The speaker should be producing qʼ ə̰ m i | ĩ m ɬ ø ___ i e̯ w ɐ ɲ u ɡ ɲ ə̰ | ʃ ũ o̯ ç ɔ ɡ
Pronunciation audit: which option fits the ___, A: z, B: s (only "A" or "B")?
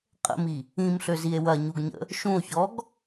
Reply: A